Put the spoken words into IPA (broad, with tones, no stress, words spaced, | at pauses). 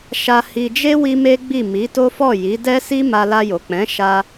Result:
ʃa˧hi˧d͡ʒe˦ wi˦me˦ɡ͡bi˦˨ mi˨˦to˦ fɔ˦˨ji˨˦dɛ˦si˦ ma˧la˧jo˨k͡pɛ̃˨˦ ʃa˦